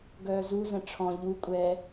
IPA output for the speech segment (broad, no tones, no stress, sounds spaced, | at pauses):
ɡ œː z u z ɛ̃ ʈ͡ʂʰ ɔ̃ ʎ u kʷʼ ɛ